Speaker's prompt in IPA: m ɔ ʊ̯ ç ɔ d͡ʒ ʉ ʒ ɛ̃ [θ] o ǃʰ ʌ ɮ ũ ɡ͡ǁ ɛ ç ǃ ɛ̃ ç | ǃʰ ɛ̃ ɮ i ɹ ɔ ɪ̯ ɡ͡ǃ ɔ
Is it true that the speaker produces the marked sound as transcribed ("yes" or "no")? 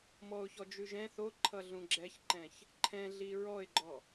yes